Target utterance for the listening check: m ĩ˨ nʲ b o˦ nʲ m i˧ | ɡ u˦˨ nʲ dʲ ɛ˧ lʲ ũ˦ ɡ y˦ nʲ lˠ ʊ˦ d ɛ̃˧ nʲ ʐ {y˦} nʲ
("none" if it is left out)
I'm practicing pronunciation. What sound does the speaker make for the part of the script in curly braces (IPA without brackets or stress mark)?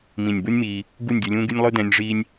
i˦